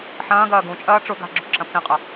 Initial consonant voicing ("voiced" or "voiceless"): voiceless